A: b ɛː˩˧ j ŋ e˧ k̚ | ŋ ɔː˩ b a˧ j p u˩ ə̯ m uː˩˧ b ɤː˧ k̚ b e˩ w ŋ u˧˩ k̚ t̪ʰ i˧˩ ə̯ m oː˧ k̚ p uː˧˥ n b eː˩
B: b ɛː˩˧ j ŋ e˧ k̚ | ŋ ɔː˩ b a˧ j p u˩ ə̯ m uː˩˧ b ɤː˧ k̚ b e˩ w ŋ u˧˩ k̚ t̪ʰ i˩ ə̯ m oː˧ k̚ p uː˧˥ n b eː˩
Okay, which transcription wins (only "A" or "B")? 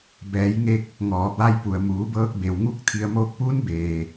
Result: B